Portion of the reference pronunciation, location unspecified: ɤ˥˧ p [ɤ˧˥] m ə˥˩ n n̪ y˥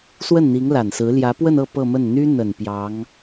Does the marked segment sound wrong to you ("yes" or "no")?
yes